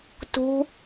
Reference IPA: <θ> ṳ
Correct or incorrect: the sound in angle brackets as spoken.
incorrect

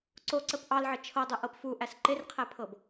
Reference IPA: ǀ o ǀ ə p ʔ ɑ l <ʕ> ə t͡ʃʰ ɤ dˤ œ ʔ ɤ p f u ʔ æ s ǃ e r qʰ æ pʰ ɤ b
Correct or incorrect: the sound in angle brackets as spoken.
correct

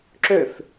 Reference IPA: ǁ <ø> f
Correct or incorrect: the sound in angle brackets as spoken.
correct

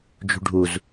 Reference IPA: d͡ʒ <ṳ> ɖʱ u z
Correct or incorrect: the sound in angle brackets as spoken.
correct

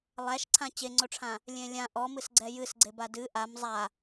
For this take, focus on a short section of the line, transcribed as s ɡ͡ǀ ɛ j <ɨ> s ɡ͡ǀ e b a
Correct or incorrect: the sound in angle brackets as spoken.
correct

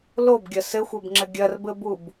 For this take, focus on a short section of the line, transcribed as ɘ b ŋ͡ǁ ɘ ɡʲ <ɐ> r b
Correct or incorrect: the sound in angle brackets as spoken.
correct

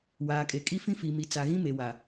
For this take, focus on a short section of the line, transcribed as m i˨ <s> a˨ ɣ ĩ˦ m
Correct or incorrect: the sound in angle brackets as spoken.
incorrect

